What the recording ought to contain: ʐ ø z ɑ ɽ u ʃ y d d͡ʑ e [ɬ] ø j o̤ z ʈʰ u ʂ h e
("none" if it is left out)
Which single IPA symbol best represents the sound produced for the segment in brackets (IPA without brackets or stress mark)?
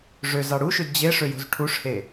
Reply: ʂ